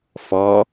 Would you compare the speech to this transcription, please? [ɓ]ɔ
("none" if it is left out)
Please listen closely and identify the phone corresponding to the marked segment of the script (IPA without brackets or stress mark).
f